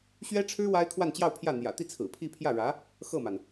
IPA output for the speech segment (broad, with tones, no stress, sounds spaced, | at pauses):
ɕ ɥ ɛ˥ ʈ͡ʂʰ ɻ̩˥ w a˥ ɪ̯ kʰ w a˥˧ n t͡ɕ j ɑ˥˧ ʊ̯ pʰ j ä˥˩ n̪ j ä̰˨˩ t̪ i˥˩ t͡sʰ ɹ̩˨˩ pʰ i˥˧ pʰ j ä˥˩ ɻ ä˧˥ | x ɤ˥˩ m a˩ n